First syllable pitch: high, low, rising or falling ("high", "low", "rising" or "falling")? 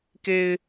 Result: high